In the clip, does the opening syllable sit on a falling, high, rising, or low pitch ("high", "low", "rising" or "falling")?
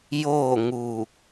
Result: falling